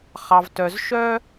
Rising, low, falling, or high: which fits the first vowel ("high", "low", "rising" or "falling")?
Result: low